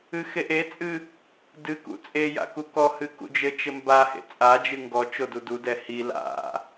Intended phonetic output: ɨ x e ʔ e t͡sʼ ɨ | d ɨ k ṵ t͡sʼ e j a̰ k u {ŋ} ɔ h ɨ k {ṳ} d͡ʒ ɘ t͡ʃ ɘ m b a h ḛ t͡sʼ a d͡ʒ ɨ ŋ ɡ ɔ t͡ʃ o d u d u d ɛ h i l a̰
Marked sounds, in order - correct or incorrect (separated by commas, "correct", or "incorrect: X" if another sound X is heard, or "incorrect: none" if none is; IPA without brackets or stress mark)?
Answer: incorrect: k, incorrect: ṵ